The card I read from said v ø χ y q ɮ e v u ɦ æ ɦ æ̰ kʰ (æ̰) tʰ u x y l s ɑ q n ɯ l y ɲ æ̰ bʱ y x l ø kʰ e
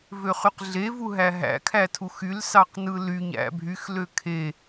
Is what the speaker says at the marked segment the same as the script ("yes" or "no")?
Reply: no